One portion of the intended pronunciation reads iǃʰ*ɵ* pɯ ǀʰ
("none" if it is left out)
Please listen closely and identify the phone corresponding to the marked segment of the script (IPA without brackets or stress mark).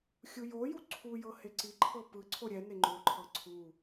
ɤ